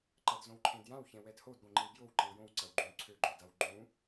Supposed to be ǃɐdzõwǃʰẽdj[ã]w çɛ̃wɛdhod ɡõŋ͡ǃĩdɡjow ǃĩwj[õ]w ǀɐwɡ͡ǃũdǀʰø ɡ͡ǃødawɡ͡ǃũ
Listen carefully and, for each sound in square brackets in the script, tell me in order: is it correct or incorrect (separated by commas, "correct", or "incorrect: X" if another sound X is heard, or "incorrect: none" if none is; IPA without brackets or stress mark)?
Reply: correct, correct